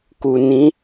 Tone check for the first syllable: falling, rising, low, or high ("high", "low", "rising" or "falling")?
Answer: low